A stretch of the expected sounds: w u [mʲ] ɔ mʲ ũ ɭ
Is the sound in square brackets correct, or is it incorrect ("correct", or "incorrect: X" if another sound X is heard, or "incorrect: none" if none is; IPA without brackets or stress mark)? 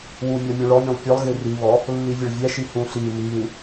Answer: correct